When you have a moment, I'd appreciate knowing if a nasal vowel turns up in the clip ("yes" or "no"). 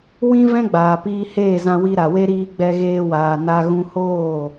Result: yes